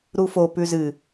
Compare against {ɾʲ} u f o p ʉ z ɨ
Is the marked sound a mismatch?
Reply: yes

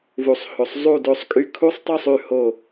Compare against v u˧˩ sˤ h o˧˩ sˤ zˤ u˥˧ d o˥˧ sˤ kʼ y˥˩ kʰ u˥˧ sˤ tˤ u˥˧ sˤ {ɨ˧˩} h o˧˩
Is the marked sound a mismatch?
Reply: yes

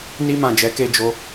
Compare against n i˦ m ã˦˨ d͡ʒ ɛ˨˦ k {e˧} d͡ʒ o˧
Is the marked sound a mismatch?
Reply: yes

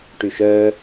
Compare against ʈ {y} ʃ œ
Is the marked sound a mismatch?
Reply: no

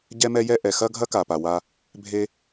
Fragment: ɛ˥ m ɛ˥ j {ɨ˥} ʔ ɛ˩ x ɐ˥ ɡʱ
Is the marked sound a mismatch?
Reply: yes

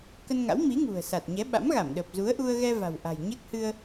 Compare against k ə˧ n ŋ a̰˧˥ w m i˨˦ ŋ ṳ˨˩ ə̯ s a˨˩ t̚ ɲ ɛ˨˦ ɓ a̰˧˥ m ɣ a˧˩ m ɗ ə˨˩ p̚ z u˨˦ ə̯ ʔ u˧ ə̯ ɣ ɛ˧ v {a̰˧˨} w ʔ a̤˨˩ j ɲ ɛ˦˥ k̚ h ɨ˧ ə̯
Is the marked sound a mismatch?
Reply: yes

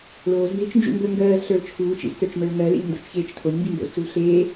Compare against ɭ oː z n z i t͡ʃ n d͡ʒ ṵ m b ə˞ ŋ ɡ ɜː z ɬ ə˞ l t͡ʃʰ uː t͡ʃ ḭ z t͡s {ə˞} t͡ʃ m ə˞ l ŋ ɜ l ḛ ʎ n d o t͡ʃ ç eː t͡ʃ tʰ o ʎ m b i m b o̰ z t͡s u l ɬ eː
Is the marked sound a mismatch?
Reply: no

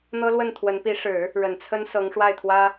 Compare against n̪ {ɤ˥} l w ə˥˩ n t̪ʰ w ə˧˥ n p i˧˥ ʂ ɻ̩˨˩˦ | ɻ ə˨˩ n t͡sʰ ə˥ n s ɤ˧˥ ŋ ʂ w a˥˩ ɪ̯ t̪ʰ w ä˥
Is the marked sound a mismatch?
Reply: no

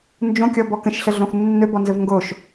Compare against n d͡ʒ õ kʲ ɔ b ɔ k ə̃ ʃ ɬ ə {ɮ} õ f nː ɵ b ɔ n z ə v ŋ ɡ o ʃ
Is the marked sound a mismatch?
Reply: no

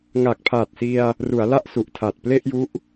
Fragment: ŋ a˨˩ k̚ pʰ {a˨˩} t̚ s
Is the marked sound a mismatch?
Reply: no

